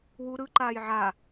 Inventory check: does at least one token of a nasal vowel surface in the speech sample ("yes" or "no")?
no